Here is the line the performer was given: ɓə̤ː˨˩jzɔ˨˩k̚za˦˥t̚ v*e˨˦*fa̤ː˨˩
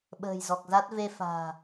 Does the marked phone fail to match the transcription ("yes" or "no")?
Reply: yes